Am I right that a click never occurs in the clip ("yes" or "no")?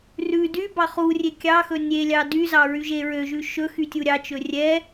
yes